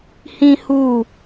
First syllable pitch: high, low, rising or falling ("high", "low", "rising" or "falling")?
high